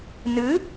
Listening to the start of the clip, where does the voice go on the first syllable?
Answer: rising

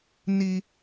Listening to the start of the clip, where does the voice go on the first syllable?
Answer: high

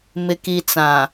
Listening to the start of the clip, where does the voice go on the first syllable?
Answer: low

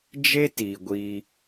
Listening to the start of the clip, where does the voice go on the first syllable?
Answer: high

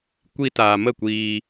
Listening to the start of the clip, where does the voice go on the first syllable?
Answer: high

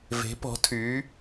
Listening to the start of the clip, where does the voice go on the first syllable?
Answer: rising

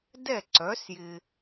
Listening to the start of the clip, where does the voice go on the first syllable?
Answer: falling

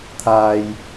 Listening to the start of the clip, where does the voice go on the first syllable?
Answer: high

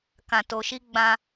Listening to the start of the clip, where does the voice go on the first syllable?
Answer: low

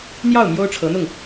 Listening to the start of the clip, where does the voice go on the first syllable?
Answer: falling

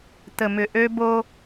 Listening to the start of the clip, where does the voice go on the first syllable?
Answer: low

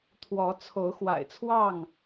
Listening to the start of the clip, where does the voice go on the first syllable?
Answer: rising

